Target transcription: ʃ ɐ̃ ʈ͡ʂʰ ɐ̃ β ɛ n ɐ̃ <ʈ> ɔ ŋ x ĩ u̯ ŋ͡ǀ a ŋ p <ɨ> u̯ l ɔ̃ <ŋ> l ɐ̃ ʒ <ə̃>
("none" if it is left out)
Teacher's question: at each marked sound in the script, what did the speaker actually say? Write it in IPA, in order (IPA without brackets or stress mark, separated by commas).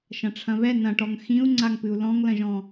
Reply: ʈ, ɨ, ŋ, ɔ̃